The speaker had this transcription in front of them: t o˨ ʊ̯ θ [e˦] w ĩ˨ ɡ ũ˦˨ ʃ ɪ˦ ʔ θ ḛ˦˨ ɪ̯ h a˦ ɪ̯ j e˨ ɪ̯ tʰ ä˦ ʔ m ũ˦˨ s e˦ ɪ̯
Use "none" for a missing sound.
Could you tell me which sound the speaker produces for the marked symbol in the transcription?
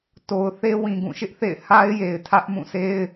e˦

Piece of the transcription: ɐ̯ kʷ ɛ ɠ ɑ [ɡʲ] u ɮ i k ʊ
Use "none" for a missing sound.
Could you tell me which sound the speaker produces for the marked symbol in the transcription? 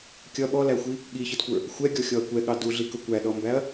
d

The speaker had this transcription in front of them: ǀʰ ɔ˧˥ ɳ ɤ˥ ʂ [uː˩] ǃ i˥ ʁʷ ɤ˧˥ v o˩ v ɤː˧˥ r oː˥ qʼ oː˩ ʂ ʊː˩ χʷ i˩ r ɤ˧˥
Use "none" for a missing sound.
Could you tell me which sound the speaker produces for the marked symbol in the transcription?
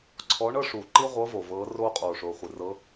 uː˩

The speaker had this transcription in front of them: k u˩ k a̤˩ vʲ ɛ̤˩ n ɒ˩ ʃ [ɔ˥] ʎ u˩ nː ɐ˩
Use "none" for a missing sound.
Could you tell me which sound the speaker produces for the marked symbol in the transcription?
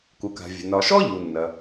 ɔ˥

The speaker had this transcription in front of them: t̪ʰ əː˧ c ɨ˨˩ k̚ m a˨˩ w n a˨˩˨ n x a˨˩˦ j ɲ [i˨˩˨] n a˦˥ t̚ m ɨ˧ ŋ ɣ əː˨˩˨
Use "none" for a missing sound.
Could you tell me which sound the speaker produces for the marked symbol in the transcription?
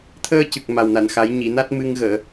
i˨˩˨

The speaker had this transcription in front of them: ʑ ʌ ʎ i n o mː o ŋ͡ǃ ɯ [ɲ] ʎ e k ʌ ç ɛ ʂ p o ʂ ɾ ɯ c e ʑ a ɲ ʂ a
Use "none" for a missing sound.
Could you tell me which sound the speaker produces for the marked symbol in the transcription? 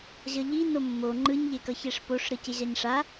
ɲ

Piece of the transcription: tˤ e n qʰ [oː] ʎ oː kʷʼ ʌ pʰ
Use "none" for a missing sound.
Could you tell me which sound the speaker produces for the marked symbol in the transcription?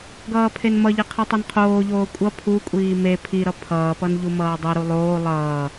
oː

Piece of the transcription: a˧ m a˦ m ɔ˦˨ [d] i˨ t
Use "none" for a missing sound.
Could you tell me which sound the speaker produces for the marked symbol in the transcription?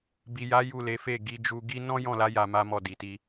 d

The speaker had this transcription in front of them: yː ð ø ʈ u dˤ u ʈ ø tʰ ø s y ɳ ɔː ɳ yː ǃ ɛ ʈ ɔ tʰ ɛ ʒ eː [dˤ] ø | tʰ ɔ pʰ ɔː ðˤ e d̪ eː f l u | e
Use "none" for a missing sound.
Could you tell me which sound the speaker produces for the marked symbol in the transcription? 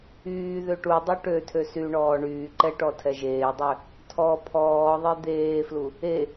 dˤ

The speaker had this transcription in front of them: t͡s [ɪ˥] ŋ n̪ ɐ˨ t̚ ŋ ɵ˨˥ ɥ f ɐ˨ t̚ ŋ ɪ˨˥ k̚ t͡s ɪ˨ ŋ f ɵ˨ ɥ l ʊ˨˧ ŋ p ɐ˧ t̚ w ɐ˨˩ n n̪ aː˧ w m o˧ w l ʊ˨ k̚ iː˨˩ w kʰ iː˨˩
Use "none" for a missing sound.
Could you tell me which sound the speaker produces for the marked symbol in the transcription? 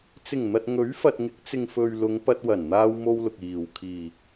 ɪ˨˩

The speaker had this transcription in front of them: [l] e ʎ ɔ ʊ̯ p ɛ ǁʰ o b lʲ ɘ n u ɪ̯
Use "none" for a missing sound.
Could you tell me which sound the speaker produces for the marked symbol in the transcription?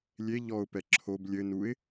lʲ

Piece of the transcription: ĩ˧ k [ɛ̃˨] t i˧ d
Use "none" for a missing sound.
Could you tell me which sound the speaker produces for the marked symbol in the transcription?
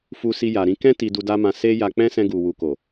ɛ̃˦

